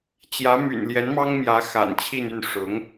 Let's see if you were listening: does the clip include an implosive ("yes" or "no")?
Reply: no